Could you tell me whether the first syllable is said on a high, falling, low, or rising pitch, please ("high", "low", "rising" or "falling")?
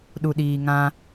low